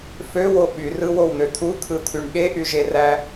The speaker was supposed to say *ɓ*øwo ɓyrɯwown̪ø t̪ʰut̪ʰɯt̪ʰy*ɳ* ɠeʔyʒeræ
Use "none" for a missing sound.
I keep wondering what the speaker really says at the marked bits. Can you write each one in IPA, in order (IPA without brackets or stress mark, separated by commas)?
f, ɳ